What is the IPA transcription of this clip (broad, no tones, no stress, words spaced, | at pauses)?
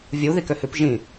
vʲu ðikøhʉp ʒĩ